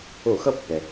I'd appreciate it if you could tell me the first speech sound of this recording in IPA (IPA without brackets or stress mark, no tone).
o